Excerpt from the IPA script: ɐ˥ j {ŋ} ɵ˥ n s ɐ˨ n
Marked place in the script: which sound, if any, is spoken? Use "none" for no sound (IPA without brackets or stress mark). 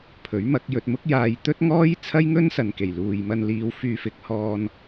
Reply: ŋ